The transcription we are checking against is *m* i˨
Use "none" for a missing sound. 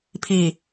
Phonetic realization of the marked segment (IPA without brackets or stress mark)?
pʰ